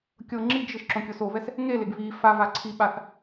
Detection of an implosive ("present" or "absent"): present